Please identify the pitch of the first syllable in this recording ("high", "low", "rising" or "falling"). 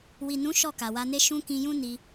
low